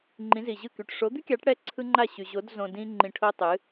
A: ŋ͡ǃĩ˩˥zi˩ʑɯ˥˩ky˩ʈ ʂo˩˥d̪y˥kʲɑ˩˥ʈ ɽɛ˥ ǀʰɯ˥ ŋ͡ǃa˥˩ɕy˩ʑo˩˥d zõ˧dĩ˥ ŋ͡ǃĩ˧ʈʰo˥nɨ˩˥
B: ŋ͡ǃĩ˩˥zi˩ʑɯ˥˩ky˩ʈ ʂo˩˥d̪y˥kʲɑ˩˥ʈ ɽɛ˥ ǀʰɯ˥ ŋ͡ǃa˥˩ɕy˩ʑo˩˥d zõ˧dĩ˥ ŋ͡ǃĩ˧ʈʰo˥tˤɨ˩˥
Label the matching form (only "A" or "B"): B